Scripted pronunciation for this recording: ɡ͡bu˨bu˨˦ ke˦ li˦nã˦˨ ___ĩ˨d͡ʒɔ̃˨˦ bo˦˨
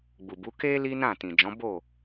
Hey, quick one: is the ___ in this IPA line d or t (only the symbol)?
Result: t